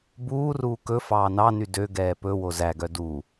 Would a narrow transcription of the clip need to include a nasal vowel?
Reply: no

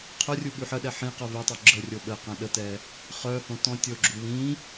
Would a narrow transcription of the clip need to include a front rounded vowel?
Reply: yes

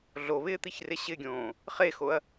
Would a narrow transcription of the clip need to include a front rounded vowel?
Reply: no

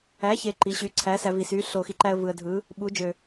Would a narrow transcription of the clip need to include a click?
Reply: yes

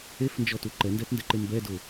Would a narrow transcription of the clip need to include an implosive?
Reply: no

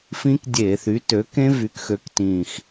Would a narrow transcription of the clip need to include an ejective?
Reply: no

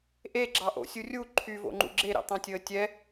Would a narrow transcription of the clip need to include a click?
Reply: yes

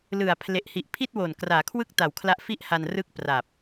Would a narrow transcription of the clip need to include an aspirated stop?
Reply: yes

